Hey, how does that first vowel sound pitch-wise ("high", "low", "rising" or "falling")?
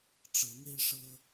rising